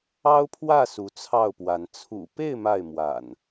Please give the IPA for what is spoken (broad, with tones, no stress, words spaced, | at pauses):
ɑ˦ʊ̯pʰwä˥˨ su˨˦t͡sʰɑ˥˨ʊ̯pwa˨˦n t͡sʰṵ˨˩pe˥˨ɪ̯ ma˥˨ɪ̯mwa̰˨˩n